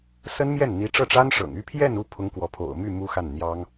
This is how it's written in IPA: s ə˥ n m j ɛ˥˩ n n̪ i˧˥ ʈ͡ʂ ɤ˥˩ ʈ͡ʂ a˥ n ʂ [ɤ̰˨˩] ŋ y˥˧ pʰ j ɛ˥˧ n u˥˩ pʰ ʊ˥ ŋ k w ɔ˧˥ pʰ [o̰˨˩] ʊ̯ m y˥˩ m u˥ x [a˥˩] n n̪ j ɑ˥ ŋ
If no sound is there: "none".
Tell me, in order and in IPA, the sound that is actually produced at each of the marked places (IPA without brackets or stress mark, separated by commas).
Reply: ɤ̰˨˩, o̰˨˩, a˥˩